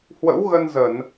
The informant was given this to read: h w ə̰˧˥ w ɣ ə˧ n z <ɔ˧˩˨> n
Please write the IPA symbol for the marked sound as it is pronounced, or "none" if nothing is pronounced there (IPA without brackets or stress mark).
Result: ə˧˩˨